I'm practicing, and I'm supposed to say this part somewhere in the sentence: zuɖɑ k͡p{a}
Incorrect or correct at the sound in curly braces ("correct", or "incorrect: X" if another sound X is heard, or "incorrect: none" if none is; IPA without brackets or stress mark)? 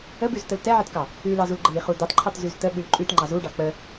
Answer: incorrect: ə